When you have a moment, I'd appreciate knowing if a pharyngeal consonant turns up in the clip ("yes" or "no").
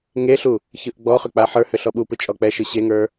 yes